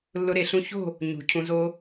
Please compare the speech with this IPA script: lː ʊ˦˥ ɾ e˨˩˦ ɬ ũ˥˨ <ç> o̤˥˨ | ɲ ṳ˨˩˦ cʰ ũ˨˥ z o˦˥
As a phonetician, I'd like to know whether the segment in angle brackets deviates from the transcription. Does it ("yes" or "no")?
no